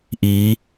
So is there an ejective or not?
no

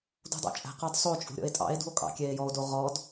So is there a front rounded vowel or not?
no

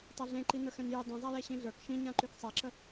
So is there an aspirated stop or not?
no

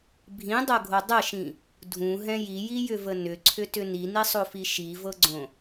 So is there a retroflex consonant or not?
no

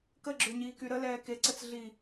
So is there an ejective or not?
no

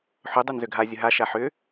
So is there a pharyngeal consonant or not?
yes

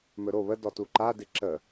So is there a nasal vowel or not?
no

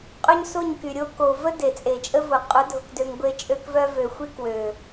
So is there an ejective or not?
yes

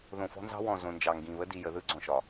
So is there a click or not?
yes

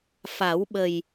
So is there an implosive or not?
yes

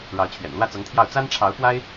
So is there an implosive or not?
no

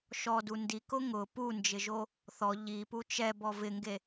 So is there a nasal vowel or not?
no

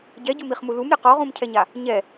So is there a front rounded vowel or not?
no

